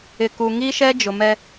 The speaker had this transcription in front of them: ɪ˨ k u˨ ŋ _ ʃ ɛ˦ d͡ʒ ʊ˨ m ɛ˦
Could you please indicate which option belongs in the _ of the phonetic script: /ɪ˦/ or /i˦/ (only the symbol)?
i˦